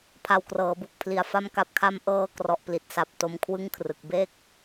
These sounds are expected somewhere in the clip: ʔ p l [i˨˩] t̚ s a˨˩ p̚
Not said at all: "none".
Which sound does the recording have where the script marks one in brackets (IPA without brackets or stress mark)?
i˨˩